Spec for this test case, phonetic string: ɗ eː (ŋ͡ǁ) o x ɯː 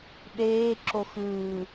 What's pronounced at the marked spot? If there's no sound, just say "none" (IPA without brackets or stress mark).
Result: ǁ